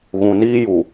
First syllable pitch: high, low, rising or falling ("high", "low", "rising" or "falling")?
low